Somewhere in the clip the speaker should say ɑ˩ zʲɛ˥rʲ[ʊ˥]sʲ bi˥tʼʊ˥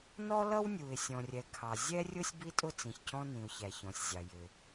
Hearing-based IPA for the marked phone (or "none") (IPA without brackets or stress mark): ʊ˥